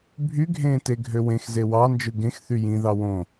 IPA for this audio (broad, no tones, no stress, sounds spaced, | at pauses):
bʱ y ɡʱ ẽː t e ɡʱ ø w ẽ x z e w ɑ n d͡ʒ ɯ ɡ ẽ x θ y j ĩ ð ɑ w õ